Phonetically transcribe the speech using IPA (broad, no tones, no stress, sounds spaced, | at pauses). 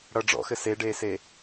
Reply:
ɽ ʌ ɖ͡ʐ ɔ̰ x ɘ s e ɖ eː s e